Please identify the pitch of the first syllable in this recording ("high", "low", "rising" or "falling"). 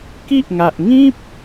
high